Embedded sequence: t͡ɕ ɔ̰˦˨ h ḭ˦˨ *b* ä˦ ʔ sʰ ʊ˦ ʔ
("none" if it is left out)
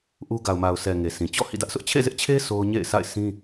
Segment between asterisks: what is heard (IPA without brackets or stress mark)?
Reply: d